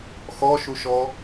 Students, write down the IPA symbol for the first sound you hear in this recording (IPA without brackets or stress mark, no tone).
x